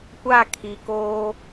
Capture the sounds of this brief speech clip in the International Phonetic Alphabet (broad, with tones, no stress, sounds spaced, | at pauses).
kʷ a˦˨ kʰ i˨ k oː˦